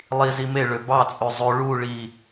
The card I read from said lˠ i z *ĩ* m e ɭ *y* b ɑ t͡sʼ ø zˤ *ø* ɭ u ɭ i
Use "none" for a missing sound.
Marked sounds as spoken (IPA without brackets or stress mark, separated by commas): i, ø, ø